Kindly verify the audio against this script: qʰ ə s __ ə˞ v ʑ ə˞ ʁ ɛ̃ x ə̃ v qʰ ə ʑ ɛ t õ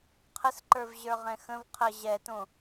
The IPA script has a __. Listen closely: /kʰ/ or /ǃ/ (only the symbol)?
ǃ